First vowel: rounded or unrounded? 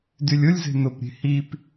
rounded